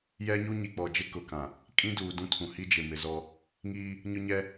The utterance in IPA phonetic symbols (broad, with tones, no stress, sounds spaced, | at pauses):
j ɛ˦ ɲ u˦ ɲ i˨ k͡p ɔ˨ d͡ʒ ɪ˦ k ʊ˨ k ã˨ | kʼ ĩ˦ d uː˨ d ũ˦ tʰ ũ˨ h i˦ d͡ʒ ɪ˨ m ɪ˨ z ɔ˦ | ŋ iː˦ | ɲ ʊ˦ ɲ ɛ˦